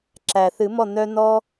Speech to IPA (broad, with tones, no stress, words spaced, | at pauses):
ǁæ˩θɨ˨˩˦ mɔ˥˩n̪œ˦ n̪ɔ˦